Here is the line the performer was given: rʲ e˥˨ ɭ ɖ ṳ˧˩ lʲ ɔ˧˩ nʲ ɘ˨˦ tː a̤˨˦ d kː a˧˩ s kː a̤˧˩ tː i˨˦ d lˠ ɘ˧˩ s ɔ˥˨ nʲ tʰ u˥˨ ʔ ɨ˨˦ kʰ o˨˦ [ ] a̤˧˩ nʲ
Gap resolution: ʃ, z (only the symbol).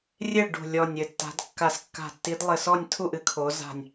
z